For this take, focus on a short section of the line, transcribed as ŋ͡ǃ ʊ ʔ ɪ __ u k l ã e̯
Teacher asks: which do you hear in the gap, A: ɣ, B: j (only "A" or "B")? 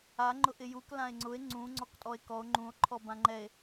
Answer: B